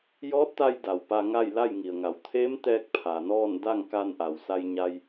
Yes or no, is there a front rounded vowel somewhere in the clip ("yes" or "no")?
no